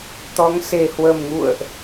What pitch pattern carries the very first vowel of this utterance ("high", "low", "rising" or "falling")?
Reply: rising